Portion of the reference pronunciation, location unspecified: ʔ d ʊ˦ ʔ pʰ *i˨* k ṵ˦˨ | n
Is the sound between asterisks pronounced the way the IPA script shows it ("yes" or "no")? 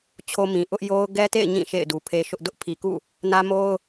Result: yes